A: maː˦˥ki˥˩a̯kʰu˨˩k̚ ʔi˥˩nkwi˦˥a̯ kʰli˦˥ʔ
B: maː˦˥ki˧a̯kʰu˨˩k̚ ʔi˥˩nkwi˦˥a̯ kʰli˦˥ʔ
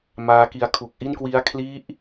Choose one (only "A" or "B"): B